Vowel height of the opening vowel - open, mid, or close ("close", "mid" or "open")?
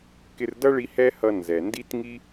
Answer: close